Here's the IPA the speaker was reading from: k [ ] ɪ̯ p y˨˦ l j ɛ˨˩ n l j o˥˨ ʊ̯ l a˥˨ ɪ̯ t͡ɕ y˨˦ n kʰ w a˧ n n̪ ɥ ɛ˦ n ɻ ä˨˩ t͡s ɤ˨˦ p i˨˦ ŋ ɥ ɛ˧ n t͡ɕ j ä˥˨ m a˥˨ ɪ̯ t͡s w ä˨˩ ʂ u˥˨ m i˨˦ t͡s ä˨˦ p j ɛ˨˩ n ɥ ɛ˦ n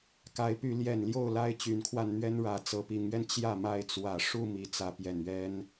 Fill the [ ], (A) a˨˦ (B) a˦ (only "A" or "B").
A